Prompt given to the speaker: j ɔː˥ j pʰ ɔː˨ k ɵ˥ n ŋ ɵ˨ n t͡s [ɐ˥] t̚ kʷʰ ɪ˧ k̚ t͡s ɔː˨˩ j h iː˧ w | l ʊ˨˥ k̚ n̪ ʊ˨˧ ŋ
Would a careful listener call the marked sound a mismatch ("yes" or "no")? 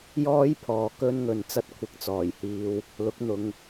no